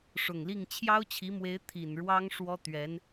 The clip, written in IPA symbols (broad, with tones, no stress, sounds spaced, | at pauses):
ʂ ʊ˨˩ ŋ l i˥˩ ŋ t͡ɕʰ j ɑ˥ ʊ̯ t͡ɕʰ i˧˥ m w e˧˥ ɪ̯ t̪ʰ i˨˩ n ɻ w ɑ˥ ŋ ʂ w ɔ˥ t̪ ɥ ɛ˧˥ n